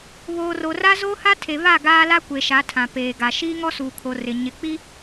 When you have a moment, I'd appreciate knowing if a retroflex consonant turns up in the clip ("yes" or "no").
no